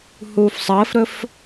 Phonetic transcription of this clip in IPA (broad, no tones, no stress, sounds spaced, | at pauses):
h uː f sˤ əː f ɾ ɵ f